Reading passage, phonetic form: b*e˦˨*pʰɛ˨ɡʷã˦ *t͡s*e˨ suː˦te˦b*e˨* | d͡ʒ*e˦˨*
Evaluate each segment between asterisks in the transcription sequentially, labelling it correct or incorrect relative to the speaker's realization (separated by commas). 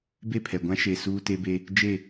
correct, incorrect, incorrect, correct